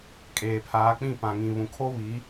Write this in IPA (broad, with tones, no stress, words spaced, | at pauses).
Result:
kʼeː˨pʰaː˨˦k͡pĩ˦˨ pã˨ŋĩ˨ βũ˨kʰo˦βi˨˦